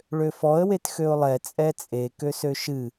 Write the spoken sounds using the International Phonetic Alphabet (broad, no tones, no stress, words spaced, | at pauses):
ɭøfɔə̯ wetxøʊ̯lˠɛ t͡sʼɛt͡sʼe køsøʃɨ